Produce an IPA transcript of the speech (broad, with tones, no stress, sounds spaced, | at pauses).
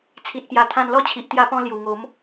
t͡sʰ i˨ t̚ p j a˨˩ t̪ʰ ã˧ n l ɔ˥˧ t͡ɕʰ i˨ ʔ t̪ j a˧ p ɔ̃˧ l j u˨˩ ŋ o˨˦ m